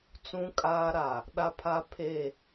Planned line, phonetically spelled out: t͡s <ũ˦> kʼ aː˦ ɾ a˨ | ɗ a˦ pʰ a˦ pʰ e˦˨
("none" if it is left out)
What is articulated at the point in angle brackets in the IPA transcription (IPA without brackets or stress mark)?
ũ˦